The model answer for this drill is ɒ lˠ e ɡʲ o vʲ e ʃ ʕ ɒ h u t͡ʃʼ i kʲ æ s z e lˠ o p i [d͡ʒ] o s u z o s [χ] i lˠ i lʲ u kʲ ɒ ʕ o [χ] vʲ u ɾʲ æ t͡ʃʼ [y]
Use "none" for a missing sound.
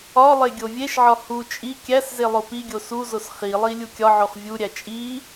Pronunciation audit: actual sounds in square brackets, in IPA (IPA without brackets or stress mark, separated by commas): ɡʲ, χ, χ, i